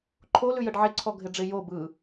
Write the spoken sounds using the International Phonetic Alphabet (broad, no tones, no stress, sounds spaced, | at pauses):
ǃʰ o l ʉ j ə ɖ ʕ e ǀʰ ɔ ɡʱ ɪ ɖ͡ʐ ɪ j o b ɯ